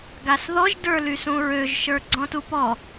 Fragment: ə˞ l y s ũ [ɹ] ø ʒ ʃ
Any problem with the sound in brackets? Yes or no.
no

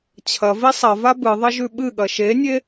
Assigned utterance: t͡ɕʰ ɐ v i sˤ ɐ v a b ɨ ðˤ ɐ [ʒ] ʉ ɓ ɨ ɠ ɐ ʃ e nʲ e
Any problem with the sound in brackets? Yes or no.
no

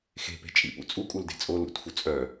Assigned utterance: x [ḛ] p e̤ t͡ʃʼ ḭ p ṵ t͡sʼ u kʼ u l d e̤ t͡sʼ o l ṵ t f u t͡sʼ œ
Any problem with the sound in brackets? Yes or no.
yes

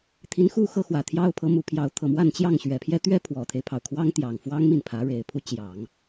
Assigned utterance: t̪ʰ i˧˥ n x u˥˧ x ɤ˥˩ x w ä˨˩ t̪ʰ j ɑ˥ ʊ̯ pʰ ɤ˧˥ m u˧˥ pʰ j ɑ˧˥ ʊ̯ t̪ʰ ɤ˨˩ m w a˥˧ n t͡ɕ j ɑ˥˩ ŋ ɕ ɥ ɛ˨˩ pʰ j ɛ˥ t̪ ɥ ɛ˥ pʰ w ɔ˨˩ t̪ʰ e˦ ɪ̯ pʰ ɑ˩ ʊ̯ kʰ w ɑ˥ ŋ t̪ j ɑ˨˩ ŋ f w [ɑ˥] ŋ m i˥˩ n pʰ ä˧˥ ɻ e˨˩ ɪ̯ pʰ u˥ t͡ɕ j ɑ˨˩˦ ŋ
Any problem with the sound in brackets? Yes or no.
no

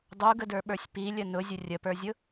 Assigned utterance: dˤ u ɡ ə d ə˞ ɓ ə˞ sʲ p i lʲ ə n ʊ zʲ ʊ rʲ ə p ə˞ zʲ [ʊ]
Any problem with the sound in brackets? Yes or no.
no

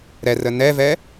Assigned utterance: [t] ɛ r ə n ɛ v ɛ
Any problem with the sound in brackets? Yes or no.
yes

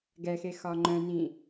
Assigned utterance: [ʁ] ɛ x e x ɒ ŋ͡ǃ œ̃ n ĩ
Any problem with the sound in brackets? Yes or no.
yes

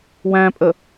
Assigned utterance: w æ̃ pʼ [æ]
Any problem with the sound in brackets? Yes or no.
yes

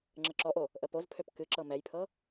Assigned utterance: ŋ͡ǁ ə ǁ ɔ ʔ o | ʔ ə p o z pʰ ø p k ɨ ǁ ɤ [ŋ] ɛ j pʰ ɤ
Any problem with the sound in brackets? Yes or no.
yes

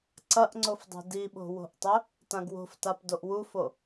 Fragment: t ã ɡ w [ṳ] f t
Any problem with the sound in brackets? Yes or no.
yes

